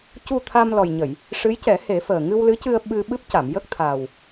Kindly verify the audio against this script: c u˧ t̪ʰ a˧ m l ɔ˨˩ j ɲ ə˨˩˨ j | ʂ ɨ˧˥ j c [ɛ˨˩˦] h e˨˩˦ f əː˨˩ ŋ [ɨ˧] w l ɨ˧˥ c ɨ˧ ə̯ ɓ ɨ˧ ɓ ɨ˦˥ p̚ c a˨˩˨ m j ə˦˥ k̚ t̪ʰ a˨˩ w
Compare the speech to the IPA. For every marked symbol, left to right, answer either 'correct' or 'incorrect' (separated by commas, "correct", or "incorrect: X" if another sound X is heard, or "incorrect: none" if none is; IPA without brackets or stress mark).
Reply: correct, correct